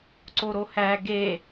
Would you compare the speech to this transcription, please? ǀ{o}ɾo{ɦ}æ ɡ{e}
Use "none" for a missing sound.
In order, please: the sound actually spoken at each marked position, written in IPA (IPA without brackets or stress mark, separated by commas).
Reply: o, h, e